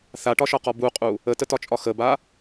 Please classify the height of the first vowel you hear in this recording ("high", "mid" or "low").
low